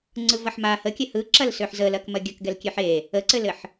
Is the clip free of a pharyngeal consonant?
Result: no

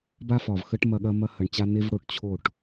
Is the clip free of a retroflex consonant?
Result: no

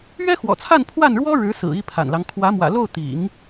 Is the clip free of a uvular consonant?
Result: yes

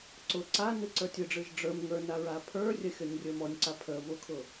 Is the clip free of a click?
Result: no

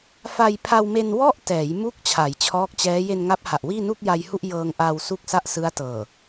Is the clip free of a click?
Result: yes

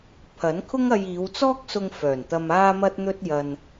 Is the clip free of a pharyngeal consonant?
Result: yes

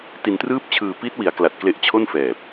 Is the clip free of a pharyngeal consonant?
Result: yes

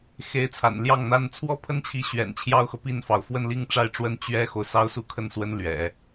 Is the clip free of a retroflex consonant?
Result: no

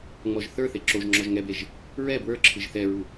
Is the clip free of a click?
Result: no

